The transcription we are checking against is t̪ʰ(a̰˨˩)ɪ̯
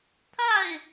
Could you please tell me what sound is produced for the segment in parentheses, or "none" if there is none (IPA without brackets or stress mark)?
a˥˩